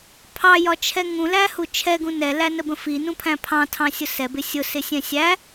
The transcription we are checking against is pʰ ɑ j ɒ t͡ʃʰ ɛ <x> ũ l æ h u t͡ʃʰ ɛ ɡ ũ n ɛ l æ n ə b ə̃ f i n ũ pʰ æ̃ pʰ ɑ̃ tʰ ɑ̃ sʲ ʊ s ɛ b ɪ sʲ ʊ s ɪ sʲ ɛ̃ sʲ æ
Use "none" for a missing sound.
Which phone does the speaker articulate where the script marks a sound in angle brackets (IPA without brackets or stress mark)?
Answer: ŋ